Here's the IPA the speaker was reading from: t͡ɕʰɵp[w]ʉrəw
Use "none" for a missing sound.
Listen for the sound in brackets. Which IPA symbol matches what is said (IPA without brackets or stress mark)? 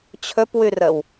w